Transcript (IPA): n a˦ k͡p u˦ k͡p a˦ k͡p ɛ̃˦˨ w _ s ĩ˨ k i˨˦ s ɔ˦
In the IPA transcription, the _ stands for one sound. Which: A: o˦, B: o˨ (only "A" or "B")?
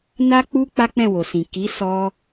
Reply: B